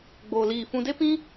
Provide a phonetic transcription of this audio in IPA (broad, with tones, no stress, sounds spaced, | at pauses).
ɡ͡b oː˧ l iː˦˨ f ũ˧ d e˦ p ĩ˦